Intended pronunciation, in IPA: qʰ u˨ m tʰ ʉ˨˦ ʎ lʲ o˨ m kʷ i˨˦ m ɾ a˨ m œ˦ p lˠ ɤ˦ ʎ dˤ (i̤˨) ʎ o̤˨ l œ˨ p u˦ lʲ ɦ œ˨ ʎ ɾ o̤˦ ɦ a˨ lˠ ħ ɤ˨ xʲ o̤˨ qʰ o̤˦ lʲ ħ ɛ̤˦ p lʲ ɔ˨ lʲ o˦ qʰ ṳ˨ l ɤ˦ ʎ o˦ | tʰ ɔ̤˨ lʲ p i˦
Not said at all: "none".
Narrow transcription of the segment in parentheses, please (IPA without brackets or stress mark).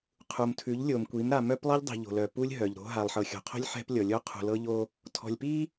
i̤˨